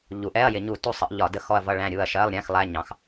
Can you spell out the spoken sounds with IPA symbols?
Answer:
ʎu˩˧ʔɛ˧˥˧ɐ̯jɪ˧˩˧ɲu˧˩˧ tu˦˨sˤə˩˧ʔ ʎɒ˧˩˧də˦˨xɔ˦˨ɐ̯ vʌ˦˨ɭæ̃˦˨ɾʲu˦˨ɐ̯ ʃɜ˧˥˧lˠɾʲæ̃˧˥˧x lˠæ˧˥˧ɲɑ̃˩˧x

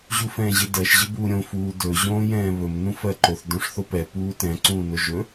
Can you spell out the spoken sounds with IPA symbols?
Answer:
ʑufɛ̃ːʑɪdɜʃ ʑɪbuːɾʲõ fuːdɵ ʑõːjɛ̃ːβɵm nũfɜǃoθ dõʂθopɛ puːtɛ̃ ǀũːnoʒɵ

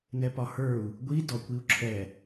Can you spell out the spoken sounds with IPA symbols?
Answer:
nɛpɒhə˞u̯ | ɡʷi dɔkʷ iu̯ǁʰɛ

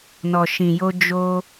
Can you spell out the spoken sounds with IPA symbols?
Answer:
nɔ˨ʃĩ˨jo˧ d͡ʒo˧

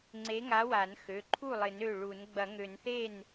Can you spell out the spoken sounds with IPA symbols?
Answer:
ŋ͡ǀe˨˥ŋa˨˥wa˨˩˦n xø˩˧˩ ǃʰu˥˩lˠɪ˨˩˦nø˩˧˩ ɭu˨˩˦n ɡ͡bɐ˨˩˦ŋø˨˩˦nθe˥˩n

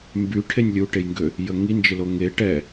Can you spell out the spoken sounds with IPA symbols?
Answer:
mby ʈʰenʲlʲuʈejŋɡø | jəŋind͡ʒɪlo ŋe ʈɛ

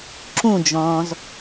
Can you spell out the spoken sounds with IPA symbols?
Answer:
ǁũd͡ʒɔ̃ːz

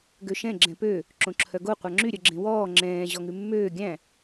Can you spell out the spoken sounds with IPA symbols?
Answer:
ɡøʃɛ̃ ɡ͡ǁɛ̃pø | ǁõǁʰœɡo qʷɑŋ͡ǁy ɾʲœɡ͡ǁẽwɔː ŋ͡ǁɛ̃ː ʑɔŋʉmːøː ɡʲæ̃

